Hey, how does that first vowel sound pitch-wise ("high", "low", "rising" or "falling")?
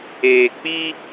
low